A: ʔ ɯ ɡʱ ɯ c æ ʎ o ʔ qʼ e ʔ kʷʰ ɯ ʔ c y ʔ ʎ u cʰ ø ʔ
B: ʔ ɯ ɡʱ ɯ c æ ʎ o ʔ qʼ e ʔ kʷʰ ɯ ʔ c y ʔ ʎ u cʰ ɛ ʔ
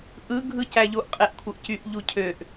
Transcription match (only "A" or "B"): A